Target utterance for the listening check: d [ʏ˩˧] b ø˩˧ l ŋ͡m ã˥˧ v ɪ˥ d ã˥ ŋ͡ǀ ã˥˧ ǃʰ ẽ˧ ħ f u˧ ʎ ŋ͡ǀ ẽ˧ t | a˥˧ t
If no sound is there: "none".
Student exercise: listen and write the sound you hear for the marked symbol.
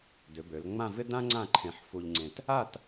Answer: ʏ˩˧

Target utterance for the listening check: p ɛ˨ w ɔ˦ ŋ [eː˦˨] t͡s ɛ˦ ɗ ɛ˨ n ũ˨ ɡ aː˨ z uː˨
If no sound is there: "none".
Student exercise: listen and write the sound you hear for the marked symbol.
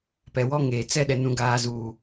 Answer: eː˨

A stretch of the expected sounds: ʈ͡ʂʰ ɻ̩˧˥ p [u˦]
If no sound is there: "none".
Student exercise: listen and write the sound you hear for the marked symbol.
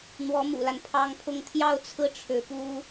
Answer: u˥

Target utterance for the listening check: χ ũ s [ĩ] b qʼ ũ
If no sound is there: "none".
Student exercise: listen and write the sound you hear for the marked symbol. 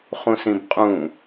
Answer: ĩ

